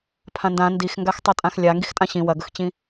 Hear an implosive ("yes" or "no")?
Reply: no